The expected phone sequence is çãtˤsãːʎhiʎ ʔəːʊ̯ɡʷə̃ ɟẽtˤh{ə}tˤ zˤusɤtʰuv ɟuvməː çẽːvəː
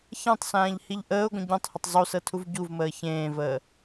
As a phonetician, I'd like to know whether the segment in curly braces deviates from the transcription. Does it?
no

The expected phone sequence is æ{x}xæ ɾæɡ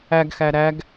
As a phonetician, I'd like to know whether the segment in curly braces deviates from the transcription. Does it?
yes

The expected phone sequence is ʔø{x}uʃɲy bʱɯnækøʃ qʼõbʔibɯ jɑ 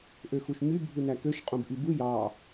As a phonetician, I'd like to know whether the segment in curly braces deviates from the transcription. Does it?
no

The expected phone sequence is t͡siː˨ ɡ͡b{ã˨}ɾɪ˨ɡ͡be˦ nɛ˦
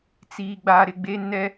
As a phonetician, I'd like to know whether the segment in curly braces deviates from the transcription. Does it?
yes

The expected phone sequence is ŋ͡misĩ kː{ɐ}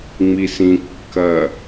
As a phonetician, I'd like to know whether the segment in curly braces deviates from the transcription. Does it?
no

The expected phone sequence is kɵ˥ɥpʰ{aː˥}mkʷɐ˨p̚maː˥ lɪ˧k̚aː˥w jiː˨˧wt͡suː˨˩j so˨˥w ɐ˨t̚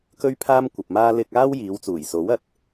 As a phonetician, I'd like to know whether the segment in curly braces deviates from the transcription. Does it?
no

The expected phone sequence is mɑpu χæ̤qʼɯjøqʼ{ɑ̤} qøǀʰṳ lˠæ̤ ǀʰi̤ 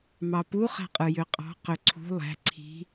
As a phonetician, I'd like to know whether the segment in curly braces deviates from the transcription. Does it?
no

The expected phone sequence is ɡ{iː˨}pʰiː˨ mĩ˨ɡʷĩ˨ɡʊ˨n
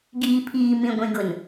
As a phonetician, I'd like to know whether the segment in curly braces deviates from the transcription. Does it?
no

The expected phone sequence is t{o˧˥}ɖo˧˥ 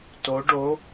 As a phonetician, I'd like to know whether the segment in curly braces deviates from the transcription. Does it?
no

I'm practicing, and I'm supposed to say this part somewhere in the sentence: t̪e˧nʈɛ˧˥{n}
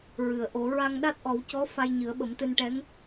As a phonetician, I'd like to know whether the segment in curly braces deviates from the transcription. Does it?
yes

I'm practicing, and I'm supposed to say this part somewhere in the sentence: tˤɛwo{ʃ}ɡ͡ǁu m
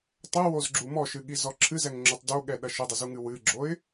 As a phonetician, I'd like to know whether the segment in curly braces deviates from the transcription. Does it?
yes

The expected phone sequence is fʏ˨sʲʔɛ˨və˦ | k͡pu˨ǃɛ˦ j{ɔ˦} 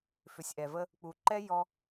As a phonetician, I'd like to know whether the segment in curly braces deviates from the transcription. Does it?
no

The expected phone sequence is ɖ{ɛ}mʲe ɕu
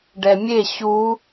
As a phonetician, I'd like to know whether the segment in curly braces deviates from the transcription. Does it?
no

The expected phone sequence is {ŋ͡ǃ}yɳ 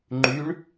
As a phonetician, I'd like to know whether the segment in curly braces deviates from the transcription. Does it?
no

